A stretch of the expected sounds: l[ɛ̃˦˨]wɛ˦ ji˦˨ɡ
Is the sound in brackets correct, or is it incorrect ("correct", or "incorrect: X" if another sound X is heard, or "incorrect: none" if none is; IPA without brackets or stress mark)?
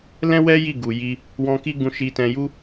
incorrect: ɛ̃˦